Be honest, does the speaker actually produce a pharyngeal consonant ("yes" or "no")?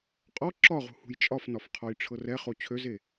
no